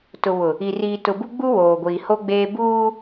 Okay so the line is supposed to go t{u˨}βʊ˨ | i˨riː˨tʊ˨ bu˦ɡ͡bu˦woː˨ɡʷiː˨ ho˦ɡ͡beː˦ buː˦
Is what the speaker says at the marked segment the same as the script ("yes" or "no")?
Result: no